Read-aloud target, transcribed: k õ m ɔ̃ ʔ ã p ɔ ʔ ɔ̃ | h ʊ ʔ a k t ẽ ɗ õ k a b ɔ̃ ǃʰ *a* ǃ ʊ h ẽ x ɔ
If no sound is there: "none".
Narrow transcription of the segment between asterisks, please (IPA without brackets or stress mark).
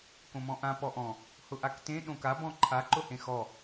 a